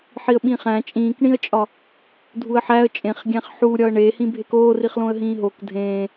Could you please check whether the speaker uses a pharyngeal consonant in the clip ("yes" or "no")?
yes